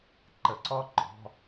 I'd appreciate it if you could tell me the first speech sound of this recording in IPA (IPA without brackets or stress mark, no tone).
ǃ